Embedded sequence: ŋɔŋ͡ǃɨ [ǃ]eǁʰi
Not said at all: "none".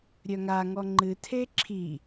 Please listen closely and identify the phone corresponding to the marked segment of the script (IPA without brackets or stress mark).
tʰ